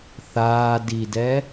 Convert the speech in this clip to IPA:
θaː didɛ

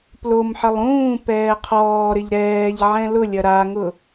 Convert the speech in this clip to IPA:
plomħəlˠ ũː pɛːqʰɔːɾɪʎ ɾɛːʎ ʕɛ̃lʊlʲɐ ɾaŋʊ

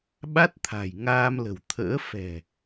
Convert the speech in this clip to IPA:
ɓa˦˥t̚t̪ʰa̤˨˩j ŋaː˧mlə̤˨˩wt̪ʰə̰ː˧˥ fɛ̤˨˩

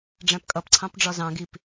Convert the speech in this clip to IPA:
ɖ͡ʐæ̃pkʼʌpǀʰɑ̃p ɖ͡ʐɒzɑ̃ɡip

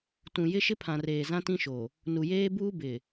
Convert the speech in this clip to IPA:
tũ˨ jɪ˦ʃɪ˦pʰã˨reː˨ zã˦tĩ˦ʃo˨ | nu˨jeː˦buː˦ bɪ˨

